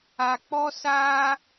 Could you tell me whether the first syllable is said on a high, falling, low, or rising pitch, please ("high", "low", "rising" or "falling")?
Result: low